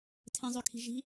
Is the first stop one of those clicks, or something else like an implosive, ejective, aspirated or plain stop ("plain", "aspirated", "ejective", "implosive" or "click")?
aspirated